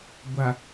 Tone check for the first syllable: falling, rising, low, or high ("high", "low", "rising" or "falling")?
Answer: low